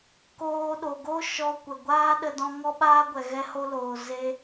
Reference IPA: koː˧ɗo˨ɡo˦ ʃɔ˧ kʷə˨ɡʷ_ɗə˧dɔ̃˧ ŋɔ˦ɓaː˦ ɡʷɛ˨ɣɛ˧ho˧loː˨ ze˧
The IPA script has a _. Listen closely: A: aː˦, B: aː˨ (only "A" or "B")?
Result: A